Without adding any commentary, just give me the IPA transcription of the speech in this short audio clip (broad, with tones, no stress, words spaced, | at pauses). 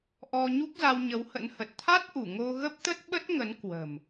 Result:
ʔɔ˧ ɲu˦˥k̚za˧wɲə˨˦whə̰˧˥n hə˨˩t̚ t̪ʰa˦˥t̚ʔu˧˩ ŋo˧ɣə˦˥p̚t̪ə˦˥t̚ ɓə˦˥t̚ŋə˨˦nkwə̤˨˩m